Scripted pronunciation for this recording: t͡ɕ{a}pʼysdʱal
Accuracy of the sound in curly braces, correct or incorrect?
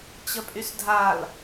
incorrect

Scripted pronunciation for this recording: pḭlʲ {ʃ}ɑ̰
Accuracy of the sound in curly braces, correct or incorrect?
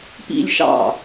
correct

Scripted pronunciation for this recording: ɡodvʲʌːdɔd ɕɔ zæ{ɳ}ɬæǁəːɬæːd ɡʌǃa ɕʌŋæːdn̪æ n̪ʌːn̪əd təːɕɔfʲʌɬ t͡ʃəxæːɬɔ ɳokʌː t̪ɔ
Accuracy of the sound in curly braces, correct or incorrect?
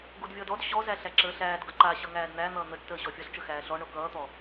incorrect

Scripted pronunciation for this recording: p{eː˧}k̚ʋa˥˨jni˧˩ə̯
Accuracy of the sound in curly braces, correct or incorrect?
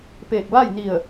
incorrect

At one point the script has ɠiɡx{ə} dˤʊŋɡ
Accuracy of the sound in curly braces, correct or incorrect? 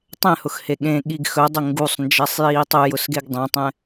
incorrect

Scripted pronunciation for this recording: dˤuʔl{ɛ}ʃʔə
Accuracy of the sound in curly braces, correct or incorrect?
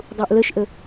incorrect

